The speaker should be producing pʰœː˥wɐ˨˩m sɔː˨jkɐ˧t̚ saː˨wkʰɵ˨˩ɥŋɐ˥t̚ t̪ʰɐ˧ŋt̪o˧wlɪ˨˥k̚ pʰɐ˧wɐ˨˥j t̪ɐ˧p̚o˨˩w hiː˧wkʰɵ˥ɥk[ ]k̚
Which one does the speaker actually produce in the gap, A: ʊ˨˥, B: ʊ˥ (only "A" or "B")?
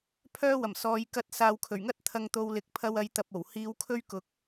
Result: A